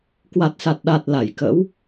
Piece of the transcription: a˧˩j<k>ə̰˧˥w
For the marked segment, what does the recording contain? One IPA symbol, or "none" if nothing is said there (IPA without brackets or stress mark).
k